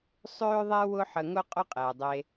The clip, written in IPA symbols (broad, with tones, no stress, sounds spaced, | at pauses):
sˤ øː˦ ðˤ ɛ˦ w ʊ˦ ħ ə˧ ŋ ʊ˦ qʼ ʊ˦ qʼ ɛː˨ dˤ e˧